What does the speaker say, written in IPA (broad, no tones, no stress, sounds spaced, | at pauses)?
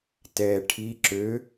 t ɛː ʈʰ i ǁ ø